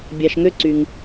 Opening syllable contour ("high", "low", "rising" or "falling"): low